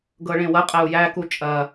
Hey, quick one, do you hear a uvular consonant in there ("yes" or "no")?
yes